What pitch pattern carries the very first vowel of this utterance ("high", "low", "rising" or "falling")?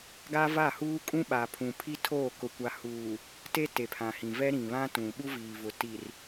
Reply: high